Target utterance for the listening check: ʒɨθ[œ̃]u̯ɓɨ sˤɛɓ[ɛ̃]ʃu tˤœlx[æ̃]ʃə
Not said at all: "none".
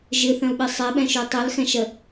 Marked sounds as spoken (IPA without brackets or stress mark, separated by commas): œ̃, ɛ̃, ɛ̃